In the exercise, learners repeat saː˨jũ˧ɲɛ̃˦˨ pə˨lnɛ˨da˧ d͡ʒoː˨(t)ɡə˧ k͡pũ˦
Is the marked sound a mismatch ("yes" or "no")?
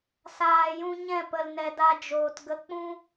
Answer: no